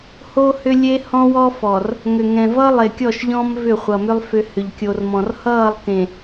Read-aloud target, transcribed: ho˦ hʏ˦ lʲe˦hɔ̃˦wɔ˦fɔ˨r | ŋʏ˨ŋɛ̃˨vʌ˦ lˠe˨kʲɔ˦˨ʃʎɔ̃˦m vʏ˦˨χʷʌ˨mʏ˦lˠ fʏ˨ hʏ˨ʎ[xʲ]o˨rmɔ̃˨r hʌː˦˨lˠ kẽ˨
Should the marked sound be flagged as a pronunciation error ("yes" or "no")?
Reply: yes